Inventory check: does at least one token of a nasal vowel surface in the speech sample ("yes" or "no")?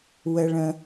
yes